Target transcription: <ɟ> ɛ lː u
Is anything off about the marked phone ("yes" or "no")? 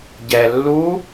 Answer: no